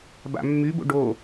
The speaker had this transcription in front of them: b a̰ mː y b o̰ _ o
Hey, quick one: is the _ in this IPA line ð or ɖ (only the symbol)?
ɖ